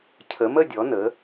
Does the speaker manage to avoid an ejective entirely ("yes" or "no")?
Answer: yes